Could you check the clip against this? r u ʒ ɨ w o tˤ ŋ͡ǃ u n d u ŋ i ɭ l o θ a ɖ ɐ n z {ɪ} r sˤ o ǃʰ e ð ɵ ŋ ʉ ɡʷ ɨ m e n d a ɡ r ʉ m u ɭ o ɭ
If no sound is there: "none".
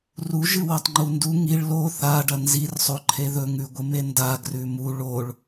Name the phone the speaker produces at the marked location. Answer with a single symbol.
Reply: i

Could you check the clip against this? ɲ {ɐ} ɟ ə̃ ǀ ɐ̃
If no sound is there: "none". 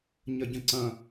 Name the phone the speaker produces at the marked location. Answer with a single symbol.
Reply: ɐ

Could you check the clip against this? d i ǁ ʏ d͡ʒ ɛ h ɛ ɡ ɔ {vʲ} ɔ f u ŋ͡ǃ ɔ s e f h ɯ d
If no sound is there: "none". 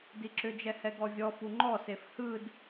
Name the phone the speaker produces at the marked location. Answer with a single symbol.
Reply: vʲ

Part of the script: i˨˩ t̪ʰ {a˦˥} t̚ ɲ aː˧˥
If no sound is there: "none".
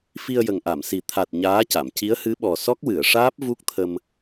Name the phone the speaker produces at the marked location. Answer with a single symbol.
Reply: a˨˩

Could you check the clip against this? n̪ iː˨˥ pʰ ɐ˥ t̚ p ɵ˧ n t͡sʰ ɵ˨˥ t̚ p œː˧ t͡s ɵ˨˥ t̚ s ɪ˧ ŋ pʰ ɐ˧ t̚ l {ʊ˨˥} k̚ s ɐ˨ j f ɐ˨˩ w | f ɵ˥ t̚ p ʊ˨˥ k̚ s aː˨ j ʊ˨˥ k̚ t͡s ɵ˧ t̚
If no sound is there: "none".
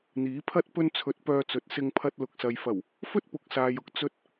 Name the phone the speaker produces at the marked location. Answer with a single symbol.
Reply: ʊ˨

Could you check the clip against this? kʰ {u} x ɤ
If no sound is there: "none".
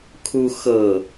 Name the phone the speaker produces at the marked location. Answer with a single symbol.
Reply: u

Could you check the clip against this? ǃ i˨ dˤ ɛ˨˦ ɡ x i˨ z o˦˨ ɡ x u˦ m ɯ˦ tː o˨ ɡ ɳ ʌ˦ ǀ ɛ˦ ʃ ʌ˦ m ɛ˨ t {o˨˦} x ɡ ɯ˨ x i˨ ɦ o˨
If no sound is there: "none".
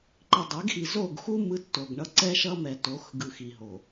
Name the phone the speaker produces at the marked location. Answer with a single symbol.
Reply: o˨˦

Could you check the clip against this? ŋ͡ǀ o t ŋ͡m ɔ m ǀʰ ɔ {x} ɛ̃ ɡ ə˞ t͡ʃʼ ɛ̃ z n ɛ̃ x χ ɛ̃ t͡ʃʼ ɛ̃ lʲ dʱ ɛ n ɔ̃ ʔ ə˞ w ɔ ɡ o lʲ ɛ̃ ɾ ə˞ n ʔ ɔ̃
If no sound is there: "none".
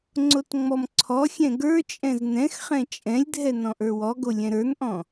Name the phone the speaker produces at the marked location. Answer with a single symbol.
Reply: xʲ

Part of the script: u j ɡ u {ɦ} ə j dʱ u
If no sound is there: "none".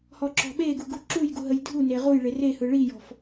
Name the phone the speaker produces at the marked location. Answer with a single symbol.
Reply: ɦ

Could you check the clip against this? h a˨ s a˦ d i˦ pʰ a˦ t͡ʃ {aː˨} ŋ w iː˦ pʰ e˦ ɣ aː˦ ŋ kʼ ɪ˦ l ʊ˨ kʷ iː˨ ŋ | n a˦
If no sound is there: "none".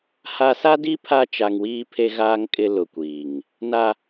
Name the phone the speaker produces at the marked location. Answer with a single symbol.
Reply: a˨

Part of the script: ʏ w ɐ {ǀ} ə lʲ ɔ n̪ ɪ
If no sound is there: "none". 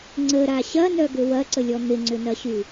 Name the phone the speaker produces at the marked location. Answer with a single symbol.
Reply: ǀ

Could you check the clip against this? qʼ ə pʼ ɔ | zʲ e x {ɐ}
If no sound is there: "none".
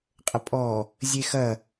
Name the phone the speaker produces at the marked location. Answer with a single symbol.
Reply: ɐ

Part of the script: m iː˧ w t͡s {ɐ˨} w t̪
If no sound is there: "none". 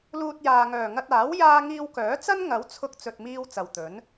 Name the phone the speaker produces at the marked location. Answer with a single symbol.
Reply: ɐ˨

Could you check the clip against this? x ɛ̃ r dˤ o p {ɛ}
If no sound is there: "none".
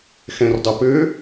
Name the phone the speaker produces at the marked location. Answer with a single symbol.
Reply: ø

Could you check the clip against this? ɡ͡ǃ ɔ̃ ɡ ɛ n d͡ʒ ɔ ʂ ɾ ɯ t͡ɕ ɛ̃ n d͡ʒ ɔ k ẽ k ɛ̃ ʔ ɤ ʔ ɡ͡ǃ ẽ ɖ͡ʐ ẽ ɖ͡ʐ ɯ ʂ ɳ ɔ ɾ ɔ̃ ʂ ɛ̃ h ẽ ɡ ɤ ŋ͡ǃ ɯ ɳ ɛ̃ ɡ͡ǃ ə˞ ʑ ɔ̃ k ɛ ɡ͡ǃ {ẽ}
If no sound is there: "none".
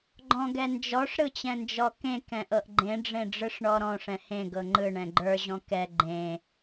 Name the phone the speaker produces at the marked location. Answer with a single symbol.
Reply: ẽ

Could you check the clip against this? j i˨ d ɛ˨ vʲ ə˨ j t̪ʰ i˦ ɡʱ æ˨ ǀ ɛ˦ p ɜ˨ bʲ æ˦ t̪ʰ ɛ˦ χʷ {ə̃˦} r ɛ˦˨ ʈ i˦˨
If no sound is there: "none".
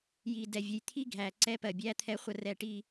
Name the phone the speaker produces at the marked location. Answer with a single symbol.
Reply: ə˦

